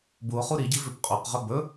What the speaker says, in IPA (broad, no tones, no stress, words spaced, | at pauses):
buo̯χu ɾiɟi vʏpqʼoqʁɵ bɵ